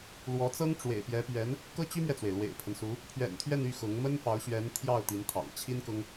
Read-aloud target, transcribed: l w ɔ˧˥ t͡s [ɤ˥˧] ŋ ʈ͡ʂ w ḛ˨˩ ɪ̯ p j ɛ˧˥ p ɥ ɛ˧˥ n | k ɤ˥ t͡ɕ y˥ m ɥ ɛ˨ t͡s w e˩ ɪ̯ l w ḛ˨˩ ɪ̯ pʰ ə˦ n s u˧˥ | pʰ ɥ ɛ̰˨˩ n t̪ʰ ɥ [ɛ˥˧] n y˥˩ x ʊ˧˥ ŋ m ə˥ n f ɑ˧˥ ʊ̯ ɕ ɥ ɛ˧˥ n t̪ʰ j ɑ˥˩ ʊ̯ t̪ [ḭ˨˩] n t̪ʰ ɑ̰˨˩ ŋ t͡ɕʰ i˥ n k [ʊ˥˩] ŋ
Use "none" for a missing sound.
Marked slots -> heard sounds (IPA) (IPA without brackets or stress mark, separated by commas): ɤ˥, ɛ˥˧, i˧˥, ʊ˥